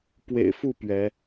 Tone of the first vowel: low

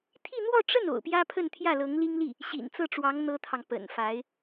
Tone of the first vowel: falling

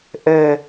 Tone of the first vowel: low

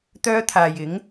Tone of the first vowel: high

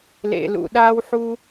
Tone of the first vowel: low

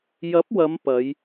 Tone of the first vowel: rising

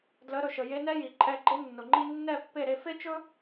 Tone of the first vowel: rising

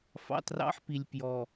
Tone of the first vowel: low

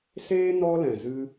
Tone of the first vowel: high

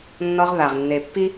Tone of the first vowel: high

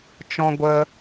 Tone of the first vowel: high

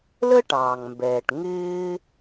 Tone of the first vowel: high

